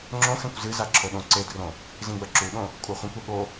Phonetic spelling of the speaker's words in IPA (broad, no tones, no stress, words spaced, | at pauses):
ŋ͡ǁõxɛ̃kʷ zɨza ǁʰoɗõǀedrõ | zĩɡ͡bɐǁuɗõ | kʷʼaχʷɐ̃kʷɛ ɠo